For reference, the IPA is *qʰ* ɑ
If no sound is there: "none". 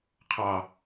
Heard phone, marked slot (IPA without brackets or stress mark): qʰ